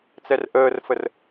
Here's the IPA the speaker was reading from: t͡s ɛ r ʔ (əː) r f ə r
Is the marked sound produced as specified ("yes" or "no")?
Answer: yes